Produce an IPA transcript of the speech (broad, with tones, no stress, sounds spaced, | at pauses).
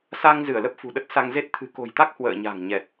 s a˧ ŋ z ɨ˧˩ ə̯ l ə˦˥ p̚ f ṳ˨˩ ɗ ə˦˥ t̚ s a˧ ŋ z e˦˥ t̚ t̪ʰ ɨ̤˨˩ k o̤˨˩ j t̪ a˦˥ k̚ h w ə̰ː˧˨ ɲ a̤˨˩ ŋ ɲ ɛ˨˩ t̚